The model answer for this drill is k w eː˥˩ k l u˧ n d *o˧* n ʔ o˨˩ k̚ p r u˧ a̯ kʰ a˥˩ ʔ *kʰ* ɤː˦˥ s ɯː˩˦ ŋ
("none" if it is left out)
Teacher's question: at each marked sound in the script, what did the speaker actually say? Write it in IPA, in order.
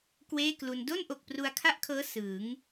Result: o˥˩, kʰ

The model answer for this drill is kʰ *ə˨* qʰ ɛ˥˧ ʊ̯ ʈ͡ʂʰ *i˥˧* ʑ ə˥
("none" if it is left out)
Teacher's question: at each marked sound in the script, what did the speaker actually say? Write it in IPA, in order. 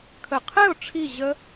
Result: ə˨, i˥˧

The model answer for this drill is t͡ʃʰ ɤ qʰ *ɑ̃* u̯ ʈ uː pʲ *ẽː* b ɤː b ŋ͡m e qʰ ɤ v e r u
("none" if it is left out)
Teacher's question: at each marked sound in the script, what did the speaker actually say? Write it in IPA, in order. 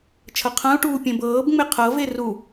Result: ã, ẽ

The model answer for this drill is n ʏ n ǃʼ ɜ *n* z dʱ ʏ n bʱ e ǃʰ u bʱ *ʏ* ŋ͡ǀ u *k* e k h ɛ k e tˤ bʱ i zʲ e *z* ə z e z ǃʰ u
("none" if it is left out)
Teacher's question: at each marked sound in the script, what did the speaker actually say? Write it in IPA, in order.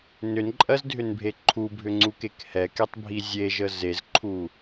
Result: none, ʏ, k, ʒ

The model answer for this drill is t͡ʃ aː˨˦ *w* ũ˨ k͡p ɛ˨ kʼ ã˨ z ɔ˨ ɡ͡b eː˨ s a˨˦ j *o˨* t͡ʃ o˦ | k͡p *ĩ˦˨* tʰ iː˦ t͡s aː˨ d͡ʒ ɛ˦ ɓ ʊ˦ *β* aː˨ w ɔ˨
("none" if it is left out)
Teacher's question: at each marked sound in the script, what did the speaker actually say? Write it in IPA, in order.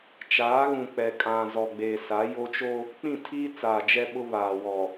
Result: ɣ, o˦, ĩ˦˨, β

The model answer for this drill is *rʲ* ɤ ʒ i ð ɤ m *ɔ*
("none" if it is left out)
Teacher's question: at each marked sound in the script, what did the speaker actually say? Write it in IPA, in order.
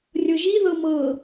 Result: rʲ, ɤ

